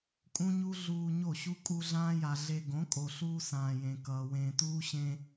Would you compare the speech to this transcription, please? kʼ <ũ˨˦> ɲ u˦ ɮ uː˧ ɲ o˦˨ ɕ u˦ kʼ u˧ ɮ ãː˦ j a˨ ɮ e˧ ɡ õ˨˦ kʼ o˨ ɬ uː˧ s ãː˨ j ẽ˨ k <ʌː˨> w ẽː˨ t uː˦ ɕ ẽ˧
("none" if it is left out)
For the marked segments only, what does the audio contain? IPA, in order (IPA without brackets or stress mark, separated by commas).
ũ˦, ʌː˨